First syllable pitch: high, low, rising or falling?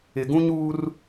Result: low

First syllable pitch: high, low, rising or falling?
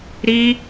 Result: high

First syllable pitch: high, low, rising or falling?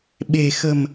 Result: low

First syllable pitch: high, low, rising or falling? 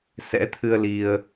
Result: rising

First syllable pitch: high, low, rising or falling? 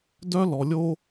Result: high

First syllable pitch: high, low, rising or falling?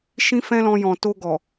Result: high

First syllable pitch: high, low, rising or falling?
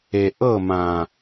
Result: low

